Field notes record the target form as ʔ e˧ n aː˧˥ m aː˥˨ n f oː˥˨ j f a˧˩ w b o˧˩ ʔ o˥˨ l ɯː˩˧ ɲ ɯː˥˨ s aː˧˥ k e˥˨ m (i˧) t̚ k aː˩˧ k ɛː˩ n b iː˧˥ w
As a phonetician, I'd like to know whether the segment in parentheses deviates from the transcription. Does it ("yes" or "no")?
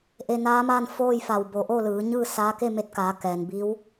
yes